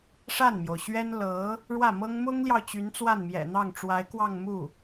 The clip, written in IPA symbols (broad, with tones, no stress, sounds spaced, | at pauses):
ʂ a˥˩ n m j o˩ ʊ̯ ɕ ɥ ɛ˥ n l ɤ˧˥ | ɻ w ä˥˩ m ɤ˥ ŋ m ʊ˥ ŋ l j ɑ˨ ʊ̯ t͡ɕ y˧˥ n t͡s w a˥˩ n m j ɛ̰˨˩ n̪ ɑ˥˩ ŋ ʈ͡ʂ w a˧˥ ɪ̯ k w ɑ˥˧ ŋ m u˥˩